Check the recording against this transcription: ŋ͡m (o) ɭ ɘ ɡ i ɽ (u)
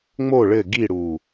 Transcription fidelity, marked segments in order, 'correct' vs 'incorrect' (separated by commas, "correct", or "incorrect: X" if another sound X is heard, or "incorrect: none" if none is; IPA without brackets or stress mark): correct, correct